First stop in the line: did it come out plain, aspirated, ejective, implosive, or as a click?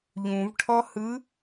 aspirated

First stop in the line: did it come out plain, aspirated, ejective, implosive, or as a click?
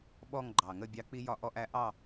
implosive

